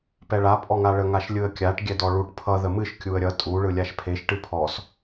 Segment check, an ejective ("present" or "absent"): present